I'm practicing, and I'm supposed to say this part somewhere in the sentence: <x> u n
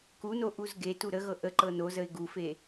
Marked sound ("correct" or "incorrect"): incorrect